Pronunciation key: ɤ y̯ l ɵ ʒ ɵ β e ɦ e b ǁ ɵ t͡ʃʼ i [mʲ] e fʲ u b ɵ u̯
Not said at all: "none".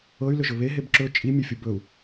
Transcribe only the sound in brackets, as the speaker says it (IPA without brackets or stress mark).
mʲ